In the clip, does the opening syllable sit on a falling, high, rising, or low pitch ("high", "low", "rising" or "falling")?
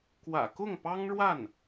low